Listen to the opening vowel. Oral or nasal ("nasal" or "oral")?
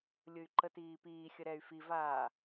oral